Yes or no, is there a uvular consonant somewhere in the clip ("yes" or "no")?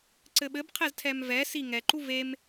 yes